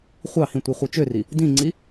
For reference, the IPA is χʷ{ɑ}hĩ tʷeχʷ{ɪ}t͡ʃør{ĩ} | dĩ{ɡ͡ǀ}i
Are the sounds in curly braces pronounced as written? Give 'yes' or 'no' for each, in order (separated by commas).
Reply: yes, no, no, no